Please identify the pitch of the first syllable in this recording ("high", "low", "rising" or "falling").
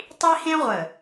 high